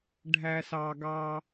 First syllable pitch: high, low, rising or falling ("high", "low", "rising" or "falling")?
low